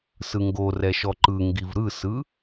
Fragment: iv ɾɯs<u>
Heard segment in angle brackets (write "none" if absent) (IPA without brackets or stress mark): ɯ